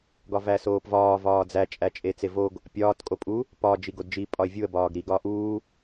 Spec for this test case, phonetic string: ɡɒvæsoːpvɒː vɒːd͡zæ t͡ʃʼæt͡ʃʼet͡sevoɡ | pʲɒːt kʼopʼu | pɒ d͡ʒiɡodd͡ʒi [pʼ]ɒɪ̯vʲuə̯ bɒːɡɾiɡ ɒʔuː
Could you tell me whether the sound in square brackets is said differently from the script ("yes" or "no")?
no